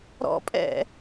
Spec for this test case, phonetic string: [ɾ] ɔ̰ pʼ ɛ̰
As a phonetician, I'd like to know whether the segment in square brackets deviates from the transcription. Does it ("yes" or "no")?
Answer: no